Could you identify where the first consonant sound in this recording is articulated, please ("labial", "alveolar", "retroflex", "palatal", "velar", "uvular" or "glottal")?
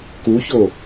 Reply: velar